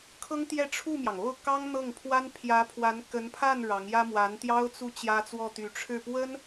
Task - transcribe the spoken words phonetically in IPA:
kʰ ɤ˥ ŋ t̪ j ɛ˥˧ ʈ͡ʂʰ u˥˩ m j ɑ˩ ŋ o˥˩ ʊ̯ k ɑ˥ ŋ n̪ ɤ˥˩ ŋ pʰ w a˥ n pʰ j ä˧˥ pʰ w a˧˥ n k ə˧˥ n pʰ a˥˩ n ɻ ɑ˧˥ ŋ j ä˥ m w a˧˥ n t̪ j ɑ˥ ʊ̯ t͡s u˥˩ t͡ɕ j ä˥ t͡s w ɔ˥˩ t̪ y˧˥ ʈ͡ʂʰ ɻ̩˥˩ p w ə˥ n

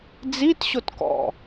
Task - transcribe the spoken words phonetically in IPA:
d͡z i t ɕ o t k ɔ̰

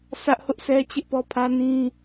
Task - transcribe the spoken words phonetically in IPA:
s ä˦ ʔ h ʊ˦ ʔ s ɛ˦ t͡ɕ ɪ˦ ʔ p ɔ˦ pʰ ä˦ n ĩ˦

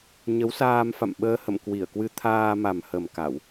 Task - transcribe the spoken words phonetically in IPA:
ɲ ə˨˦ w s aː˧ m f a̰˧˨ m ɓ əː˧ h ə̰˧˨ m k w i˧˩ ə̯ k w ɨ˧ t̪ʰ aː˧ m a˨˩ m h ə˨˩ m k a˧˩˨ w

